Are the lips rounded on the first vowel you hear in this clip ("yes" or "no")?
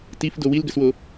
no